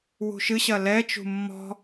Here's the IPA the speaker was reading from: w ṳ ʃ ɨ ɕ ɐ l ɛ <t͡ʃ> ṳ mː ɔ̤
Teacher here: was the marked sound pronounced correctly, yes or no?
yes